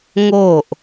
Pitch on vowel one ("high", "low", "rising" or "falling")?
falling